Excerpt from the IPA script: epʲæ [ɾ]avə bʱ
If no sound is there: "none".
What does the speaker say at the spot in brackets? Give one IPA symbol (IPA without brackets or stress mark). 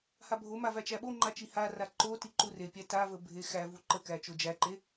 t